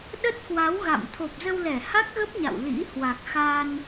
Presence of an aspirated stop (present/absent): present